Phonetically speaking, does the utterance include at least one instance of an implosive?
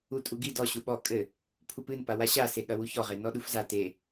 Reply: yes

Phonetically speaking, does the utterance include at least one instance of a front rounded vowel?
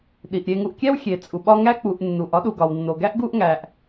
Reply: no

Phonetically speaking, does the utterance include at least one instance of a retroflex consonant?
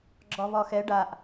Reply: yes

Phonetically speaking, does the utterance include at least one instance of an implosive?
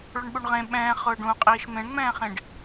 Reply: yes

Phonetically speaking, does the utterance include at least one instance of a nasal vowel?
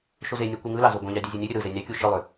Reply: yes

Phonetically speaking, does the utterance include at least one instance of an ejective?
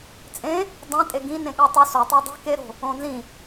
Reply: yes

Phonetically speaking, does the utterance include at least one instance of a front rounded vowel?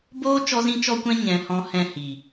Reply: no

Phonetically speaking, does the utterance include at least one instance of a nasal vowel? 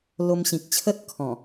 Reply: yes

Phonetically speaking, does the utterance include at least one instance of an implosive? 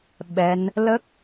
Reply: yes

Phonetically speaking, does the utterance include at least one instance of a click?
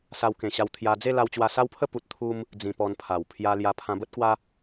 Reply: no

